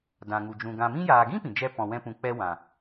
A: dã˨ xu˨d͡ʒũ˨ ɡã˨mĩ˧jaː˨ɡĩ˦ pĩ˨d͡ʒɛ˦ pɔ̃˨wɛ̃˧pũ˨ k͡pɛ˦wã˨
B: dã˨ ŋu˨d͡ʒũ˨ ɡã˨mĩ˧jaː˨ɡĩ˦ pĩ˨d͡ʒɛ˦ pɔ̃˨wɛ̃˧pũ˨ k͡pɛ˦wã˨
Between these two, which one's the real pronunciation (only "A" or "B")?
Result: B